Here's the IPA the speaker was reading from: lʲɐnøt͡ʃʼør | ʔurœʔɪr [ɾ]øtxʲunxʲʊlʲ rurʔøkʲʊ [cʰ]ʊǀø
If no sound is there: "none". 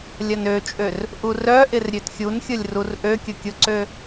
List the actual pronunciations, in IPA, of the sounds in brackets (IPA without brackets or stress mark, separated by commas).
ɾʲ, kʲ